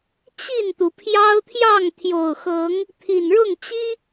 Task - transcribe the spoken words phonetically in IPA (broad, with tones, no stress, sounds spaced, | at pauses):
t͡ɕ i˥˨ n t̪ u˩ pʰ j ɑ˦ ʊ̯ t̪ʰ j ɑ˥˨ ŋ t̪ʰ j o˨˩ ʊ̯ x ɤ˨˦ ŋ | t̪ʰ i˨˩ n ɻ ʊ˥˨ ŋ t͡ɕ i˦